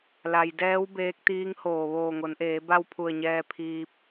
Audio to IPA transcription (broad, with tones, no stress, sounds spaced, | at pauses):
l a˩ j d ɛː˧˥ w b eː˧˥ k̚ t̪ iː˧˥ ŋ h oː˧˩ ʋ oː˧˩ ŋ o˩˧ n ʔ eː˩˧ b a˥˨ w pʰ u˧˩ ə̯ ɲ ɛː˧ pʰ iː˧ p̚